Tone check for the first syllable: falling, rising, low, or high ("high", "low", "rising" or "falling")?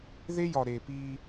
high